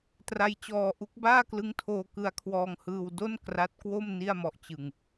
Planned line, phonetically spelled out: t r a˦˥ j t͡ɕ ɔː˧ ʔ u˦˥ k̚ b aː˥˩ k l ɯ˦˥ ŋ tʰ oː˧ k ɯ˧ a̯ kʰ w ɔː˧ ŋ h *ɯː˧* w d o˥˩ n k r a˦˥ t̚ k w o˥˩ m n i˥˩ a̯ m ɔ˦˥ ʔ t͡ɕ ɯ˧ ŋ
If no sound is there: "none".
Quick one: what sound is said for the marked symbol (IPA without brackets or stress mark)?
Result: ɯː˧